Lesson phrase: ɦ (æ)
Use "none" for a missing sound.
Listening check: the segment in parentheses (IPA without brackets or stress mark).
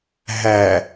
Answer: æ